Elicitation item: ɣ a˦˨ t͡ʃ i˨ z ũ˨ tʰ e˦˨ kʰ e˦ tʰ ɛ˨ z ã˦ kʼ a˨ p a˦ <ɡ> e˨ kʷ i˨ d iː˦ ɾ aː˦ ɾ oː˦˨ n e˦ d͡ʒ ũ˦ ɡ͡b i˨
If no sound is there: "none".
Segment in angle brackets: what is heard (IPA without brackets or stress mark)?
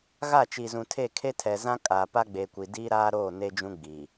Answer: ɡ͡b